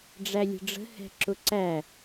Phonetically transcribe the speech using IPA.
ɖ͡ʐ æ lʲ ə̤ ɖ͡ʐ ə̤ h ɛ̤ ǁ ʊ ǀ æ

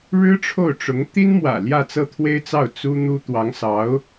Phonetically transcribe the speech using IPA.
ɻ ɻ̩˥ ʈ͡ʂʰ o˥˩ ʊ̯ ʈ͡ʂ ʊ˧˥ ŋ t̪ i˥ n m w ä̰˨˩ l j ä˥˧ t͡s ɤ˥˩ t̪ʰ w e˥ ɪ̯ t͡s ɑ˥˩ ʊ̯ t͡s u˥ n̪ u˥ t̪ w ɑ˧˥ ŋ s ɑ˧˥ ʊ̯

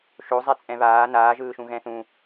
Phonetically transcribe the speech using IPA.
ʃ o zˤ ɛ t͡sʼ ɛ̃ β aː n aː ʒ ɯː ʃ ũ ɣ ɛ̃ θ ũ

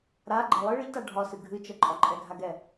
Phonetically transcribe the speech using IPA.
ɾ a ɡ͡ǃ ɛ lˠ ɨ ɭ ɨ ʎ t a ɖʱ ɒ s ɨ ɡʱ ɨ t͡ʃ ə ǃʼ ɒ ǃʼ ɛ ɡʱ a ɡ ɛ

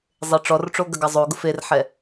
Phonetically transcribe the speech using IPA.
zˤ e ʈ͡ʂ ɔ r ʈ͡ʂ o ɡ ɐ ɡ ɑ zˤ o ɡ ʊ f e r ħ ɛ

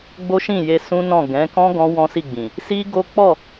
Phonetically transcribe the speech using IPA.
ɡ͡b o˦ ʃ ĩ˦˨ j e˧ s ũ˦ n ɔ̃˦˨ ɡ ɛ̃˨˦ k ɔ̃˦ ɡ ɔ̃˦ w ɔ̃˦ s i˦˨ ɡ͡b ĩ˨ | s i˦ ɡ o˦ k͡p ɔ˦˨

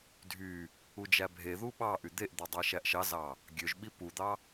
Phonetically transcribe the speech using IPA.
dʱ y | u d͡ʒ æ bʱ e ð u ɓ ɑ ʔ y d̪ e ʔ d̪ e dˤ æ ʃ æ ʔ ʃ ɑ z ɑ | ɡʲ ø ʒ ɓ i p u d̪ ɑ

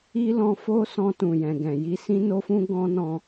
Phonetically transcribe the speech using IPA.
i˦ l ɔ̃˧ f o˦ s ɔ̃˧ t ũ˨ j ɛ̃˨ ɡ ɛ̃˨ j i˧ s ĩ˦ n o˦ f ũ˦ ɡ ɔ̃˦ n ɔ̃˧

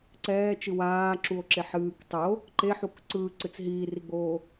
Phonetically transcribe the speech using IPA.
ǀ ɛː t͡ʃ ɨ w aː ǁ u o̯ ǁ e ħ ɨː k tˤ ɯ o̯ | ǃ e ħ u k ǀ ɯː ǀ ɨ t͡s ɦ iː r i ɡ͡b oː

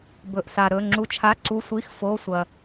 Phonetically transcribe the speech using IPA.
b ɵ˩ ʔ s a˩ ɾ ɵ˩˧˩ ŋ͡ǁ u˩˧˩ t͡ʃʰ a˩˧˩ ǀ u˩˧˩ sʷ i˩˧˩ x f o˩˧˩ sʷ ɐ˩

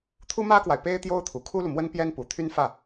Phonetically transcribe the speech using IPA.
t̪ʰ u˥ m ä˥ k w a˨ ɪ̯ p e˥ ɪ̯ t̪ j o˥ ʊ̯ t̪ʰ u˨˩ kʰ u˥ l u˨ m w ə˥ n p j ɛ˥ n p u˨˩ t̪ʰ y˥ n f ä˥˩

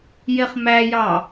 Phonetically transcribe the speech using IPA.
j e χ m æ j ɑ

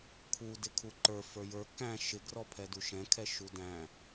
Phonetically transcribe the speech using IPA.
kʰ u d ɪ kʰ u ǃ ə˞ f ə˞ j ə˞ k æ̃ ʃ ɪ ɡ r ɔ pʰ ɛ d u ʃ ɛ̃ kʰ ɛ ʃ u d æ̃

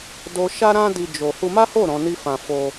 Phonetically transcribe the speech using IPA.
d o˦ ʃ a˦ ɾ ã˦ d i˧ d͡ʒ o˧ h u˧ m a˦ h o˦˨ ɾ ɔ̃˨˦ n i˦ f ã˧ f o˧

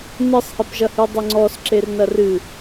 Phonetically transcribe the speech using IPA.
n ɨ sˤ h i p ʒ ɐ h ɨ dˤ ɘ ŋ͡ǀ ɔ s ǁ e r n ɐ r ɨ

